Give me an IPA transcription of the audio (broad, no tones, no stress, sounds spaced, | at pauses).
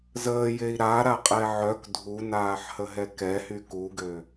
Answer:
z əː j e i̯ ɾ a ɾ a qʼ ɛ ʕ œ k dʱ u n aː ħ h ə ɦ ɛ k ɛ h y k u ɡ ø